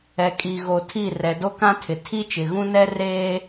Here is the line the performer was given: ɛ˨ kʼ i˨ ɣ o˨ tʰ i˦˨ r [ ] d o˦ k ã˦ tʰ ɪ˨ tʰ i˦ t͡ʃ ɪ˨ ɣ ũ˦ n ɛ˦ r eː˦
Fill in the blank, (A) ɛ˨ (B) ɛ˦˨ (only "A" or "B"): A